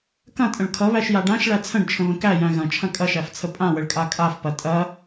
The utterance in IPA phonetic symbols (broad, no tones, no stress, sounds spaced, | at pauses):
k ɐ̃ tʼ ə̃ ɭ kʰ ʌ β æ ʃ j a ɖ ã ʃ ɭ æ t͡sʰ ə̃ ɖ t͡ʃʰ ə̃ β ə̃ k æ j æ̃ ɣ ɐ̃ t͡ʃʰ ɐ̃ kʼ ɐ ʃ æ f t͡sʰ ə pʼ ã w ə ɭ kʼ a kʼ a f p ɐ tʼ ɐ